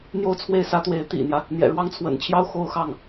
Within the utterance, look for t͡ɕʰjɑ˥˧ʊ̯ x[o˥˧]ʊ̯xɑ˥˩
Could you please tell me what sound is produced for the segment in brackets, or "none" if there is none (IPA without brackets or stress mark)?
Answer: o˥˧